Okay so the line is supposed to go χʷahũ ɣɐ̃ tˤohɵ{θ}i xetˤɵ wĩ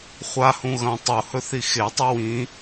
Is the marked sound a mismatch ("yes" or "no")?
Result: no